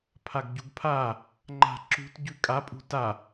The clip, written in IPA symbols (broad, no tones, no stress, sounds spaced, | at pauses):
pʰ a ɡ ɟ u ɡ pʰ a | ŋ͡ǃ a̤ ǁ ṳ t ɟ ʉ kʼ a pʼ ṳ t a